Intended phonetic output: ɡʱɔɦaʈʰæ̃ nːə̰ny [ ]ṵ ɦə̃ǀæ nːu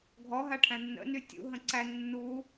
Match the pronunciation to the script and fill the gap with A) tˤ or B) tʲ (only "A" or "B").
B